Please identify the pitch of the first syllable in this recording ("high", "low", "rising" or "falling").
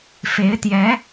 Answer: rising